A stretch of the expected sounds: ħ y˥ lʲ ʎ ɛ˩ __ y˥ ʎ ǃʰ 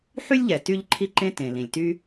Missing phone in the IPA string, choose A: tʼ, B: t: B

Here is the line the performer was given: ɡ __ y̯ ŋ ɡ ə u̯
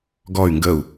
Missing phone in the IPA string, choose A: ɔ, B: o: A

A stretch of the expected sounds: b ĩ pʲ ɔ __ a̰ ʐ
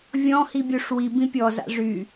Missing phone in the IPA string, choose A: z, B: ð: A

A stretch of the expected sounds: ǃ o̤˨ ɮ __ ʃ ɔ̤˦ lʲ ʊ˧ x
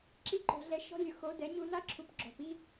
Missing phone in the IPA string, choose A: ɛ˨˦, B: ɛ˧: B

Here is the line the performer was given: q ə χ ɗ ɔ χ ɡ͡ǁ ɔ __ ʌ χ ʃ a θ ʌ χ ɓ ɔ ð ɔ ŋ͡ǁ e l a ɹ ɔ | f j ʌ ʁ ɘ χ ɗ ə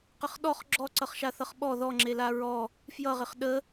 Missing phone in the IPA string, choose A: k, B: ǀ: B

